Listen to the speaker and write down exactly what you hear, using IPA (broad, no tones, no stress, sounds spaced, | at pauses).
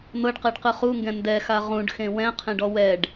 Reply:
n̪ ɤ ɖ q ɛ ɖ q ɯ χ u ŋ ɡ ɛ̃ n d ɛ x a ʁ ũ ɖ x ẽ w ɛ̃ qʰ ẽ ɖ ɔ w ɛ ɖ